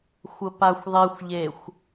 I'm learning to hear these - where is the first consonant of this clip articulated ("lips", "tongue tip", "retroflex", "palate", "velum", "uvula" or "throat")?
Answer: velum